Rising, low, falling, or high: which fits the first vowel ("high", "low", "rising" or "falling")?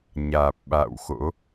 low